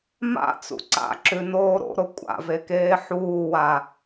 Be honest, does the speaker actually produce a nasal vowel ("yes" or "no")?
no